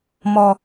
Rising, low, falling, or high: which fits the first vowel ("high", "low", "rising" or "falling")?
low